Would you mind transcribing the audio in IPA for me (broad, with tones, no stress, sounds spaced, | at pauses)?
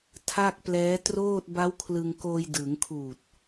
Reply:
tʰ a˥˩ k̚ p l ɛː˦˥ t r oː˥˩ t̚ b a˦˥ w kʰ l ɯ˧ ŋ k oː˧ j d ɯː˩˦ ŋ kʰ uː˨˩ t̚